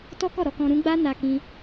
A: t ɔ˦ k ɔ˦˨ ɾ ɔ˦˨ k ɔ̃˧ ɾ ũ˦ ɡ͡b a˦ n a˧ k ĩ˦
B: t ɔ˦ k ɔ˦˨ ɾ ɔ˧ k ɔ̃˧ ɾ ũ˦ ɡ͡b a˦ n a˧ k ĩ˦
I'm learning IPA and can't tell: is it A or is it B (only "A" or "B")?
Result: B